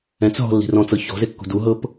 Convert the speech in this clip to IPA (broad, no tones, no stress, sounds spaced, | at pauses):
ɛ̃ t͡s ɦ ɔ̤ lː i̤ r ɔ̃ t͡s ɤ ç ɔ̤ z e kː ṳ d u ɦ ɤ p